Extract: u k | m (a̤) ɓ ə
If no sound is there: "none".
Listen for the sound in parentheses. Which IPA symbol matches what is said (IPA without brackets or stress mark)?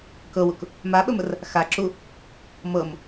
a